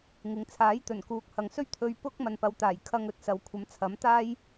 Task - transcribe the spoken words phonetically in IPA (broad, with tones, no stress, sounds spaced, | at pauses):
ŋ ɪ˨˧ ŋ t͡sʰ aː˨˥ j t̪ ɵ˨˩ n k uː˨˥ k̚ h ɐ˨ ŋ s ɵ˥ ɥ t̪ʰ ɵ˧ ɥ p ʊ˥ k̚ m ɐ˨ n p ɐ˨˧ w t̪ aː˨˩ j kʰ ɐ˧ ŋ ɵ˨ t̚ s ɐ˨ w kʷʰ ɐ˨˥ m t͡sʰ ɐ˨˥ m t̪ aː˥ j